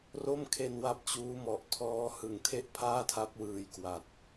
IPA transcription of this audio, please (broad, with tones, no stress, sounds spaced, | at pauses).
r o˥˩ m kʰ e˧ n w a˦˥ p̚ t͡ɕ uː˦˥ m ɔ˨˩ ʔ tʰ ɔː˦˥ h ɯ˨˩ ŋ tʰ e˥˩ ʔ pʰ aː˥˩ tʰ a˦˥ p̚ w ɯː˧ j k w a˨˩ t̚